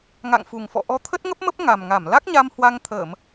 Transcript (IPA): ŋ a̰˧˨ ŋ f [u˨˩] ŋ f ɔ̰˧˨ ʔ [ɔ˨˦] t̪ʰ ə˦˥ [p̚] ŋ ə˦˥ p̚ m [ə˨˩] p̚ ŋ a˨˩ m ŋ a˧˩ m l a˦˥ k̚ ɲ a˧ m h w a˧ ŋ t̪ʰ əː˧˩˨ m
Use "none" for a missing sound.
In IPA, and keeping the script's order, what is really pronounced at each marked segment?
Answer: u˨˩, ɔ˨˦, t̚, ə˦˥

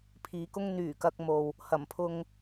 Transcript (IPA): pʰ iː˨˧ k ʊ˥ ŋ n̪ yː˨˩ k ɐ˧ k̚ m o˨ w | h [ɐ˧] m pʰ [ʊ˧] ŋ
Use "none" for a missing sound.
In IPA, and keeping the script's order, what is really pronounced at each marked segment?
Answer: ɐ˨˩, ʊ˧

